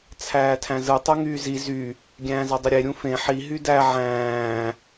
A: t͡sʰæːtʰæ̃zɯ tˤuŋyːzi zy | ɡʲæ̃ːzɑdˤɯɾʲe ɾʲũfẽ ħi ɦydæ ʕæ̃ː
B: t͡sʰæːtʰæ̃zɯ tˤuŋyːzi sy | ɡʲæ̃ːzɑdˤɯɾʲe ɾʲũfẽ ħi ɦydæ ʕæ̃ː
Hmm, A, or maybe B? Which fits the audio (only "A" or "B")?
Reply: A